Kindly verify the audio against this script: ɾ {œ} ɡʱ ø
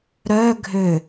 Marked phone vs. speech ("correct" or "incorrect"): correct